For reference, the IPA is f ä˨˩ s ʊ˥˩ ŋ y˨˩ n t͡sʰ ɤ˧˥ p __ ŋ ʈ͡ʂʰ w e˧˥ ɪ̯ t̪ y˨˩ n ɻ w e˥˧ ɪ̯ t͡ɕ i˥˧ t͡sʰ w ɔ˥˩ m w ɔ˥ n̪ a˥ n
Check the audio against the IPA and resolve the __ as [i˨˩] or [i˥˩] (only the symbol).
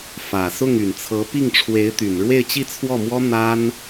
i˥˩